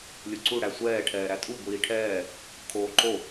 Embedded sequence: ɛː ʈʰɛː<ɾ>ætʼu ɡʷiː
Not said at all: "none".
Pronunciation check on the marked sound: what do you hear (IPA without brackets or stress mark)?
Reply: ɾ